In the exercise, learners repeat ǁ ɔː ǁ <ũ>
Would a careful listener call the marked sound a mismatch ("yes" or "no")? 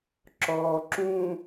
no